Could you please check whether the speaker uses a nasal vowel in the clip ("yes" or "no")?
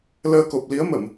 no